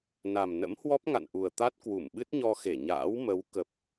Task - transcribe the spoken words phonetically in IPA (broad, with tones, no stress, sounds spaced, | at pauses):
n a˨˩ m n ə̰˧˥ m h w ɔ˦˥ p̚ ŋ a̰˧˨ n ʔ u˨˩ ə̯ t̪ a˦˥ t̚ k w u˧˩ m ɓ ɨ˦˥ t̚ ɲ ɔ˧ x e˧˩ ɲ a̰ː˧˥ w m ə˨˦ w k ə˨˩ p̚